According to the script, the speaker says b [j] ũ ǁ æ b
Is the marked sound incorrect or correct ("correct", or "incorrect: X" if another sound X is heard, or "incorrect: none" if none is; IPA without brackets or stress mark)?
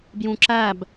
correct